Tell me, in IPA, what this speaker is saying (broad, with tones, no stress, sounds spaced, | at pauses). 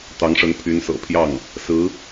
t̪ ɑ˧˥ ŋ ʂ ə˧˥ n pʰ y˧˥ n s ɤ̰˨˩ pʰ j ɑ˥˩ ŋ | s ɹ̩˧˥